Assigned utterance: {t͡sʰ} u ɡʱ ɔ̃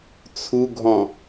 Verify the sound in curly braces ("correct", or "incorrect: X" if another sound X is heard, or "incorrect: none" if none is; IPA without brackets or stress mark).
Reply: correct